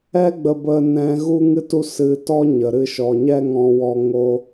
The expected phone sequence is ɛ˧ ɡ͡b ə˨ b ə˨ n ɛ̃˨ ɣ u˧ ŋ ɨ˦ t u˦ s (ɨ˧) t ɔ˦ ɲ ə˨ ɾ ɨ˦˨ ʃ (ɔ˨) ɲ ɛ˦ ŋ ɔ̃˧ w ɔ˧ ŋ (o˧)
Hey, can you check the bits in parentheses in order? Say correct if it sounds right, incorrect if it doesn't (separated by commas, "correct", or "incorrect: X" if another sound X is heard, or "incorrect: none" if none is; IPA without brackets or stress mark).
correct, correct, correct